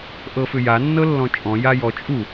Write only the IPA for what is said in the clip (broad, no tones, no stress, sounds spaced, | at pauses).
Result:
ʔ ɤ f ʏ j a nː ɤ lː ɔ̃ t͡ʃʼ ɔ̃ j a j ɔ t͡ʃʼ u